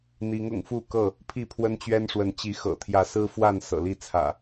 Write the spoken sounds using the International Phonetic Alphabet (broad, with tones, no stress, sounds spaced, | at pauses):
n̪ i˨˦ ŋ ʊ̰˨˩ ŋ f u˥˨ k ɤ˥˨ | pʰ i˥˨ pʰ w ə˦ n t͡ɕ ɥ ɛ˦ n ʂ w ə˨˦ n t͡ɕ i˨˦ x ɤ̰˨˩ t̪ʰ j ä˨˦ s ɹ̩˦ f w a˥˨ n s ɤ̰˨˩ l i˥˨ t͡sʰ ä̰˨˩